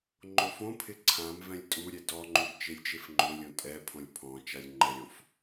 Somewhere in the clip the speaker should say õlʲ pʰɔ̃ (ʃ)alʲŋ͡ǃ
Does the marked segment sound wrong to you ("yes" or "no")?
yes